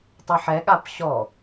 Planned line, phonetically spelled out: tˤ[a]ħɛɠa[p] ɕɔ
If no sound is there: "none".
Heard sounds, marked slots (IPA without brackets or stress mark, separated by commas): ɐ, p